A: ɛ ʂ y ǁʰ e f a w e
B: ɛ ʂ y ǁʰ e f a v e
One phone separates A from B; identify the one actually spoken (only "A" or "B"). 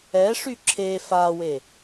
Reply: A